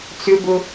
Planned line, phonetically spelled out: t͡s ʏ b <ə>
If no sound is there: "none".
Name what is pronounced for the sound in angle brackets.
ʊ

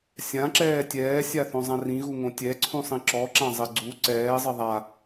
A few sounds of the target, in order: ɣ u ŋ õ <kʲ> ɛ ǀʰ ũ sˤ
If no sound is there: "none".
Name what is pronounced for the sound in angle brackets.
tʲ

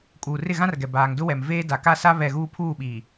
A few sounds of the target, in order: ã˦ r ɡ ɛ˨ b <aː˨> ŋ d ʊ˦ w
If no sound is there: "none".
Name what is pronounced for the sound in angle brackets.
aː˨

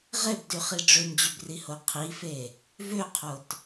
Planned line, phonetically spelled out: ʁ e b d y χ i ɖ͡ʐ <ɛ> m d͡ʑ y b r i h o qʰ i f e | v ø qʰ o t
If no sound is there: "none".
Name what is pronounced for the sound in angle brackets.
ø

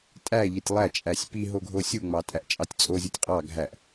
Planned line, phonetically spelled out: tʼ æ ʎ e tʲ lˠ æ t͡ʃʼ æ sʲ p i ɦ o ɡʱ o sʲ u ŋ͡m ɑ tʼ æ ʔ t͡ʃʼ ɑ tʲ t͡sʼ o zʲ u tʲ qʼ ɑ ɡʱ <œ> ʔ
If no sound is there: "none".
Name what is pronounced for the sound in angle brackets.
æ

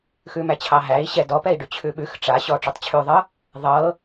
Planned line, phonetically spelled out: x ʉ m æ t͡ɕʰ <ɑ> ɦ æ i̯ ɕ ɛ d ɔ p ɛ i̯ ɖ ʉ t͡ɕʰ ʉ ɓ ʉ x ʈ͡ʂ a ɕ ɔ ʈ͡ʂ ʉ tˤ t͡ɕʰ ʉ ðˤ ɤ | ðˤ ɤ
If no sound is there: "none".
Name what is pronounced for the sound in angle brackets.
ɑ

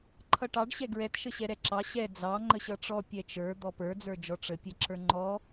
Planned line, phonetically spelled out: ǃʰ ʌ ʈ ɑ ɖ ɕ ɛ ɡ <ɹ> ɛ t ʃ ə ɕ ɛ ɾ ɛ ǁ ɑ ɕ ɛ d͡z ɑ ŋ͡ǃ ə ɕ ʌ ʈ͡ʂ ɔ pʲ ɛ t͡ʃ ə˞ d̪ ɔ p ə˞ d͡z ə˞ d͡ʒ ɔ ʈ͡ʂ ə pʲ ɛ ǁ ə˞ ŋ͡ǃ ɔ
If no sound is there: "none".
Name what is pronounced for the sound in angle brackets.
ɹ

